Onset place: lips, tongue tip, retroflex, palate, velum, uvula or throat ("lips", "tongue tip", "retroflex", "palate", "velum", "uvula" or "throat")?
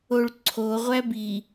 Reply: retroflex